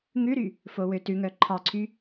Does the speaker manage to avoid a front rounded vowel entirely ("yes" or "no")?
no